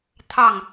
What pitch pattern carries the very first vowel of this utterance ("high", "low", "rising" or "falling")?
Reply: falling